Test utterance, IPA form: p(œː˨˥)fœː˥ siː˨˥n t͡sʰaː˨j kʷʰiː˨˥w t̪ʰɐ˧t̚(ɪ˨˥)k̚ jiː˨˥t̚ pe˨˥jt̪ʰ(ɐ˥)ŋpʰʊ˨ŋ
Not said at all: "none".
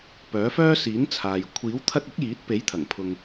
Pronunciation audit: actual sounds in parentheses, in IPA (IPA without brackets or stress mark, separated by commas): œː˨˥, ɪ˨˥, ɐ˨˩